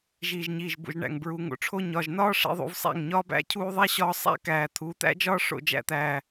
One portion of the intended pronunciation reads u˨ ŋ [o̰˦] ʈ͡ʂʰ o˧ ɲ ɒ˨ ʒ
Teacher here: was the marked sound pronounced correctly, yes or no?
no